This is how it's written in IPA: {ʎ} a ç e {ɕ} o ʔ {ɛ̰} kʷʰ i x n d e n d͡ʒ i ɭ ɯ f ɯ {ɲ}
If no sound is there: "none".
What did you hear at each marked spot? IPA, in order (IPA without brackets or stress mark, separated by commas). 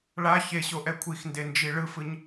ɭ, ɕ, ɛ, ɲ